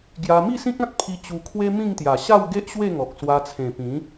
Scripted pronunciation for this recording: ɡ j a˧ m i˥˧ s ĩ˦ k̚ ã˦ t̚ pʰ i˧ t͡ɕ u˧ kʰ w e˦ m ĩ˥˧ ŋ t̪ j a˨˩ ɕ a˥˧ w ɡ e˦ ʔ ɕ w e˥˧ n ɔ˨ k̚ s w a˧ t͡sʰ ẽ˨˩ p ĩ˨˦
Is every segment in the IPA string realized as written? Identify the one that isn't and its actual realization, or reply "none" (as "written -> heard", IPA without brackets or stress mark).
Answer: n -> ŋ